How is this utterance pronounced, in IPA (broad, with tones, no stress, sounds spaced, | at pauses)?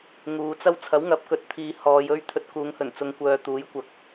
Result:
ŋ uː˨˧ t͡s ɐ˥ w t͡sʰ ɐ˨˥ w ŋ ɐ˨˥ p̚ k ɵ˨ t̚ t̪ʰ iː˨˧ h ɔː˨˧ j ɵ˥ ɥ t̪ʰ ɵ˧ t̚ k uː˨˧ ŋ h ɵ˨˩ n t͡s ʊ˨ ŋ kʷ œː˨ t̪ uː˨˥ j kʷ ɐ˨˥ k̚